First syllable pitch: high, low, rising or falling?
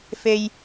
high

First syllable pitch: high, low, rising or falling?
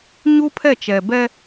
high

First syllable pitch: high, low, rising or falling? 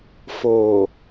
low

